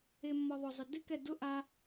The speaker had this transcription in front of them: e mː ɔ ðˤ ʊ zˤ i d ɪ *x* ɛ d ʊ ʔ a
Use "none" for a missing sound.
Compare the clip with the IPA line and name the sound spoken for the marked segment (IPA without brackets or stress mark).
k